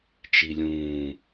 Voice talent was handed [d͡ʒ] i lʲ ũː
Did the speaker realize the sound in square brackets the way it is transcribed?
no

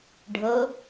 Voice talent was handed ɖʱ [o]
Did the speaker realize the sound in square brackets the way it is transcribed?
no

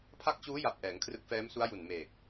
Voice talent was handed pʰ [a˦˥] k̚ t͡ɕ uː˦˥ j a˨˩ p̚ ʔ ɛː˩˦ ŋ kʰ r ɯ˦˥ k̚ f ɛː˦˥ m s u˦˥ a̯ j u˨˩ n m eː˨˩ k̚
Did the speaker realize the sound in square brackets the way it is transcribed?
yes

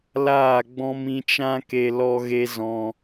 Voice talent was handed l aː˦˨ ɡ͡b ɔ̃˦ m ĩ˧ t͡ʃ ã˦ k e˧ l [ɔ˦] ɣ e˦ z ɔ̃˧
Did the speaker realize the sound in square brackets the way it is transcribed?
yes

